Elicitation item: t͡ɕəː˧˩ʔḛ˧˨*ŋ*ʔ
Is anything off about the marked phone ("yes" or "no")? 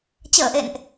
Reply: yes